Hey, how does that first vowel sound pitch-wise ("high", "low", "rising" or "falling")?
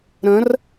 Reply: rising